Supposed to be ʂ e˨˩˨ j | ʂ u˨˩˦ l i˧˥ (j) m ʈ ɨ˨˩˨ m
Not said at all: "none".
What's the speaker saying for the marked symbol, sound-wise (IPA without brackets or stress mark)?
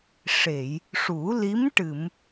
none